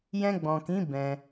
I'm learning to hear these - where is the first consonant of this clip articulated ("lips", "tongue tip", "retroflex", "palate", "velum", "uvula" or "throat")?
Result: palate